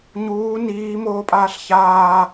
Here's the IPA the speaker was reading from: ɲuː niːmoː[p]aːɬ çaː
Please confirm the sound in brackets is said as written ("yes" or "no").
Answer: no